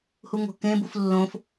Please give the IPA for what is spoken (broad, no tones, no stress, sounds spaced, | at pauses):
h u ŋ o̤ k ẽ b u f lː õ f